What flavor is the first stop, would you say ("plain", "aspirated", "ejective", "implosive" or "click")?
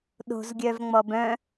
implosive